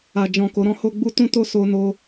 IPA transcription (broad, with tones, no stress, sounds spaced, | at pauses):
a˨ d͡ʒ ɔ̃˨ k o˨˦ ɾ ɔ̃˦ h o˦ ɡ͡b u˦ t ũ˦ t o˦ s o˧ n o˧